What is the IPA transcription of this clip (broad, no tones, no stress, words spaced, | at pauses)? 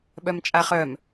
ɓœmt͡ʃʼaχœm